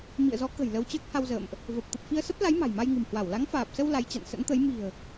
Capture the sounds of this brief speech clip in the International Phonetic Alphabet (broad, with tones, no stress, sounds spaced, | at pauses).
m ḭ˧˨ ə̯ z ɔ˨˦ k ə̤˨˩ j l ə˧ w t͡ɕ əː˦˥ k̚ h a˧ w z ə̰ː˧˨ m ʔ | v ə˨˩ p̚ t̪ ə˨˩ p̚ f i˧ ə̯ s ə˦˥ p̚ l a˨˦ j m a̤˨˩ j m a˧ j ŋ ɨ̤˨˩ m h w a˧˩ w l a˨˦ ŋ f aː˨˩ p̚ s ə˧ w l a˨˦ j t͡ɕ a̰˧˨ n s ə̰˧˥ n t̪ ə˨˦ j m i̤˨˩ ə̯